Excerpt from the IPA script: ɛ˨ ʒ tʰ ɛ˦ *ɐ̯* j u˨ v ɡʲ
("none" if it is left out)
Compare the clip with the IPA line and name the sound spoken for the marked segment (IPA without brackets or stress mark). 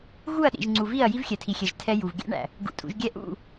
none